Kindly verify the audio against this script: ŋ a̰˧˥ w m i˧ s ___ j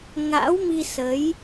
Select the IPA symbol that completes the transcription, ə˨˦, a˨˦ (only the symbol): ə˨˦